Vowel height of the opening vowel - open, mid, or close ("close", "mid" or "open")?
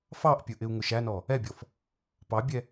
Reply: open